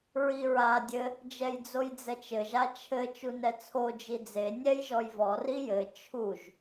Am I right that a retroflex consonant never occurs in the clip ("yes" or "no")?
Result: yes